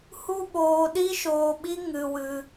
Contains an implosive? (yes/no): yes